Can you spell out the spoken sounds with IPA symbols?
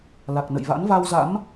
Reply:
la˨˩k̚nə̰˧˨jva̰˧˥n va˧wza̰˧˥m

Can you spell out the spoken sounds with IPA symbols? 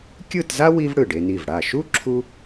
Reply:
kʲɯ˥˧tza˥ wi˥vɽɯ˧˩ɖe˧ni˧˩v ɽa˧˩ʃu˥ ǁʰu˥

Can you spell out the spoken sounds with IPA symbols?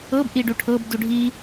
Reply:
ɤb ʔiɖuʈʰɤb duɖʱi

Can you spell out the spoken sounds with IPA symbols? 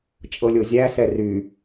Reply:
t͡ʃʼɤlʲozʲæ sɛry

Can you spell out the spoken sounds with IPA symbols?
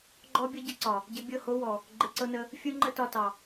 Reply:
ɡ͡ǃɔ˦ bʲɔ˦ɟə˦ǀɒ˨ | ɟɪ˧bʲɤ˦˨ho˦wɔ˨ | ɡ͡ǃɪ˧ǀɤ˦nə˦ | fʲu˦ŋ͡ǃə˦ tɒ˧tɑ˨

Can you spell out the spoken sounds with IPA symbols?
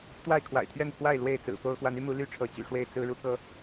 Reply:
t̪wa˥˨ɪ̯kʰwa̰˨˩ɪ̯t̪ʰɥɛ˥˨npʰwa˥˨ɪ̯ lwe˥˨ɪ̯ t͡sɹ̩˨˩fo˦ʊ̯ xwa˨˦ny˦mu˨˦ ly˦ʈ͡ʂʰɤ˨˦ t͡ɕy̰˨˩ʂwe˥˨ɪ̯ t͡sɹ̩˦ɻu˦kɤ˦

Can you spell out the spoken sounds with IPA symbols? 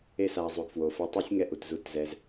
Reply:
e˧sa˨zˤu˨ɡ fwo˨fɛ˧tˤe˦sʲ ŋɛ˧ʔu˨t zu˧tzɛ˧z

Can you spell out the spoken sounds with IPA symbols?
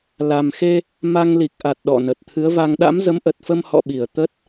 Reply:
la˨˩mxe˧ | ma˧ŋli˨˩k̚ʔa˨˩t̚ ɗɔ̰˧˨nə˨˩t̚ t̪ʰɨ˨˦ə̯va˧ŋ ɗa̰˧˥mzə˨˦mʔə˨˩t̚fə˧m hɔ̰˧˨ɓi˧˩ə̯t̪ə˦˥t̚

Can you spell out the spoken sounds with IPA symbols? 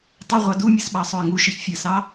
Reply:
tˤɘ ʁʷɑdumʲɨs ɓɑsˤoɪ̯ŋuʃɨç fʲɘsɑ

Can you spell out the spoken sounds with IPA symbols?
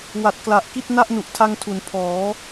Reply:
wa˨˩t̚ kla˨˩ʔki˥˩t̚ na˥˩ʔnu˨˩ʔtʰa˧ŋtʰu˩˦n pʰɔː˩˦

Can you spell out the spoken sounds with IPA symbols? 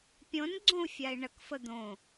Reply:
pʲõn ɡ͡ǀõu̯fʲai̯ɳək fəd̪õ

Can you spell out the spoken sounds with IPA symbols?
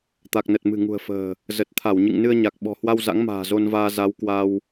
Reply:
t̪a˨˩k̚nə˨˩t̚ mɨ̤˨˩ŋṳ˨˩ə̯fə̤ː˨˩ | zə˨˩t̚t̪ʰa˧˩wɲɨ̰˧˨ŋ nɨ˧ə̯ɲa˨˩k̚ ɓɔ̤˨˩hwa˧w za̰˧˥ŋma̤ː˨˩ zo˧nvaː˧ za˨˦wkwa˧w

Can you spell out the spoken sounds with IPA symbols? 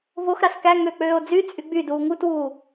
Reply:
voxɾɑs kæ ŋøk͡pøːo̯ d͡zy t͡sʼyɡ͡byduː ŋutwuː

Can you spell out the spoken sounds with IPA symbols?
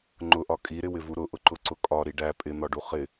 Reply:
ŋ͡ǃʊʔɒ kʼiɾɪwɪvu ɾʊʔʊǃʊǀʊ kʼɒɾi ɖæ pʼɪn̪ɒɖu χɪ

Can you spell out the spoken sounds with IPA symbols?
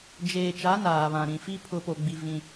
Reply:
d͡ʒeː˨t͡ʃa˨˦ naː˨βã˨ɾĩ˨fi˦ pʰʊ˨po˨ɡ͡bi˨ vĩ˦

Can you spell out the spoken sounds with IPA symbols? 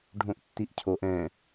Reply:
ɖʱõʔtːiʔcʰoʔ ɛ̃

